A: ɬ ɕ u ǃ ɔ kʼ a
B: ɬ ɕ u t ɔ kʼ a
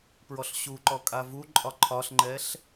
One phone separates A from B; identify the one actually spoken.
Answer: A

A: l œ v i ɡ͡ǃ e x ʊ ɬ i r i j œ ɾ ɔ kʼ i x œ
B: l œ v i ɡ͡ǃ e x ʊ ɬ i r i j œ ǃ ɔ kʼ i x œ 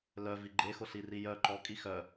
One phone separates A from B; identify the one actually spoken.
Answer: B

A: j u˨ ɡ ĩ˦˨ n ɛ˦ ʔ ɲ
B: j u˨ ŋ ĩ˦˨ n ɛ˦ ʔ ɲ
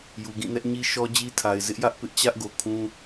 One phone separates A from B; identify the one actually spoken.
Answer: A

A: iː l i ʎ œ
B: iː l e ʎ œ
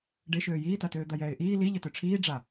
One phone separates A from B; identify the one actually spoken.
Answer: A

